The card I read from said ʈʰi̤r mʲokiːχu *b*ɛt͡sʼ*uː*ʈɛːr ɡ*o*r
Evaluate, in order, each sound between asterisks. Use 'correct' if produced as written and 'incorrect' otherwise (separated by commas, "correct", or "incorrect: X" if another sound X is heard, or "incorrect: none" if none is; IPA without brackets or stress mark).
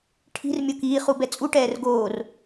correct, incorrect: u, incorrect: oː